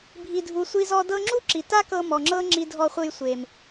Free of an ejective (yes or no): yes